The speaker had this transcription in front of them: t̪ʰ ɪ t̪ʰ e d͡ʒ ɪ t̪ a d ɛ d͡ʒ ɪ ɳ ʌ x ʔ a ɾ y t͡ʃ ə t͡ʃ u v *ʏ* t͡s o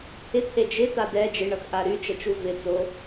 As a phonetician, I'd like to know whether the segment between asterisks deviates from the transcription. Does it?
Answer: yes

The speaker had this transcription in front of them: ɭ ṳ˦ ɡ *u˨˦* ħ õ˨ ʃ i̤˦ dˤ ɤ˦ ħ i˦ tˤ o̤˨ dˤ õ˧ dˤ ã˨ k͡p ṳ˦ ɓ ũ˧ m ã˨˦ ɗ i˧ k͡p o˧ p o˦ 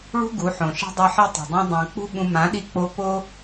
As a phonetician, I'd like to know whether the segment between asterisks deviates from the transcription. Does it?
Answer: no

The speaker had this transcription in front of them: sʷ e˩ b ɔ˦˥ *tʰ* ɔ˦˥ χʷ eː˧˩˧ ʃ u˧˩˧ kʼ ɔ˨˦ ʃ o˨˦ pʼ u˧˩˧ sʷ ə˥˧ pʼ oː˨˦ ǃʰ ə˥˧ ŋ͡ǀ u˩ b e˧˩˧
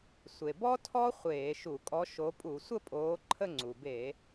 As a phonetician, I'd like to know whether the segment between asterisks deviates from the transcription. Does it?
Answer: no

